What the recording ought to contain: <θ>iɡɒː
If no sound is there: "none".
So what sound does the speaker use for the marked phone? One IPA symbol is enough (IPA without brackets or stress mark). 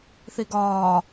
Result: θ